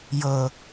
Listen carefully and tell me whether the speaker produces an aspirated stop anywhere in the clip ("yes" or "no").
no